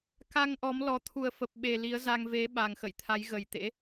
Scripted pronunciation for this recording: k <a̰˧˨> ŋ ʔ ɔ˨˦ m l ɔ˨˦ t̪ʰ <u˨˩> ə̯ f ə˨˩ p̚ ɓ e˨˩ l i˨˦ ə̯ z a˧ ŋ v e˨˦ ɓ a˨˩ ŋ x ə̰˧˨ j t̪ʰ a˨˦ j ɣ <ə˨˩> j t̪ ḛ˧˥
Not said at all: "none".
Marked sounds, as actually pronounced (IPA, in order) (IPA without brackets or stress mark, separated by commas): a˧, u˨˩, ə˨˩